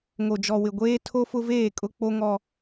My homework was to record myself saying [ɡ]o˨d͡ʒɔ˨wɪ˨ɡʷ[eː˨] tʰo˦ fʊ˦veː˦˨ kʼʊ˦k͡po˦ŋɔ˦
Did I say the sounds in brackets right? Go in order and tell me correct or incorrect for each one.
incorrect: ŋ, incorrect: eː˦

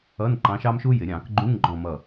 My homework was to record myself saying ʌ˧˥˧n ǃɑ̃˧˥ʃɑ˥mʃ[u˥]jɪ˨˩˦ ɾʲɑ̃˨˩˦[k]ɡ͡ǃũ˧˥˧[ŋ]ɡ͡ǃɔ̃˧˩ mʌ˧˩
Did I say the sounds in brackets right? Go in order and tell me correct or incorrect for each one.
correct, correct, correct

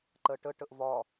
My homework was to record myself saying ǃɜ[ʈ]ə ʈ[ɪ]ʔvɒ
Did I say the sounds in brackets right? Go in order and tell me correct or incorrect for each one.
correct, incorrect: ə

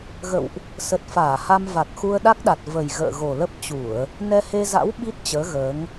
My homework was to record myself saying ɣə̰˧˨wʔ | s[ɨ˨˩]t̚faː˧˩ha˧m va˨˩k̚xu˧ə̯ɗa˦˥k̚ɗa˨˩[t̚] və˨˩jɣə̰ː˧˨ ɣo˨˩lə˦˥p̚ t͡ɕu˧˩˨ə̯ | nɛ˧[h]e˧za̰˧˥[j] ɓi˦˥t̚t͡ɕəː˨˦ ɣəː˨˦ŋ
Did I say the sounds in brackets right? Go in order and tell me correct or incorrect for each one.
incorrect: ə˨˩, correct, correct, incorrect: w

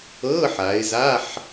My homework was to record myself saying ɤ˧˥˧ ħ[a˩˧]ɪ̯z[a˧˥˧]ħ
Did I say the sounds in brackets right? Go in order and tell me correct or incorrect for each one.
correct, correct

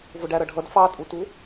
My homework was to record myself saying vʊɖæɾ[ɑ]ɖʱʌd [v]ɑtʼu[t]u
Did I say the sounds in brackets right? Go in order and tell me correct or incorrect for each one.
incorrect: ʌ, incorrect: f, correct

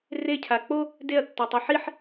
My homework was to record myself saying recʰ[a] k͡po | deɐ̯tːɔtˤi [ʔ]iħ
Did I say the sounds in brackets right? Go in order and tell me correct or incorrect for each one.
correct, incorrect: ħ

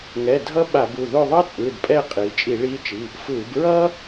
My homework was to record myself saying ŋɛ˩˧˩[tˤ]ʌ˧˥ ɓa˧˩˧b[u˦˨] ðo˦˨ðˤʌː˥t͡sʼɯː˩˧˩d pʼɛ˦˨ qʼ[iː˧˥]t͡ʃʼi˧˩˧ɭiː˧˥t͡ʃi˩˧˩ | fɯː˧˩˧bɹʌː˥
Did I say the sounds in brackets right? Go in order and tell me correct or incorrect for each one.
incorrect: dʱ, incorrect: u˩˧˩, incorrect: iː˩˧

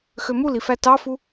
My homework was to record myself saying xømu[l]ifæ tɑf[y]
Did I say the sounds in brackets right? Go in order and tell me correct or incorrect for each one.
correct, incorrect: u

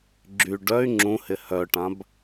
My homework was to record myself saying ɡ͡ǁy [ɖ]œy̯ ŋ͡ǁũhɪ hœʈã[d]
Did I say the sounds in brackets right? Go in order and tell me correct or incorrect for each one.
correct, incorrect: b

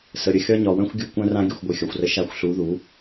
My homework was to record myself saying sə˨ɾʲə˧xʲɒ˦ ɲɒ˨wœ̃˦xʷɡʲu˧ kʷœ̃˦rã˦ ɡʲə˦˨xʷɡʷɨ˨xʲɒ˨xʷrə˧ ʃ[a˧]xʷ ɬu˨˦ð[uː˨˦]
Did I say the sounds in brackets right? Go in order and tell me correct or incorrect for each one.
correct, incorrect: u˨˦

